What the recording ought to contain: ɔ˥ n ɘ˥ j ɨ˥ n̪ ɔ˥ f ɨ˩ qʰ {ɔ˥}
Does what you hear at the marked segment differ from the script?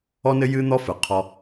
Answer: yes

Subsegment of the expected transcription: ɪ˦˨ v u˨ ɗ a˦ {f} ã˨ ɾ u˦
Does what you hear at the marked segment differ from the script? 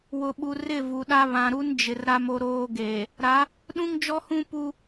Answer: yes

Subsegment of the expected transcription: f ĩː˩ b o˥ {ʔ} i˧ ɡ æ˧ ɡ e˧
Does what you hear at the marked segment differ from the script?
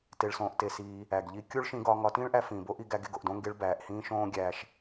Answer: no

